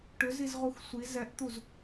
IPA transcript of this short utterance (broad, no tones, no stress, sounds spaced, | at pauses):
ʈ ʏ z i z ʁ u x sʷ i z ɛ ʔ t̪ u z